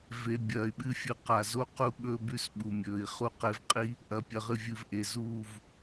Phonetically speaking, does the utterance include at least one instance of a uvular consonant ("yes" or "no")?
yes